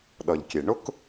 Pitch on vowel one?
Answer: low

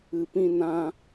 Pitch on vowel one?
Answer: low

